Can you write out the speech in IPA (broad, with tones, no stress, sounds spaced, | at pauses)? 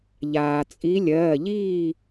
ʎ aː˩ t͡sʼ i˨˦ lʲ ɜː˩˧˩ ʎ iː˥˨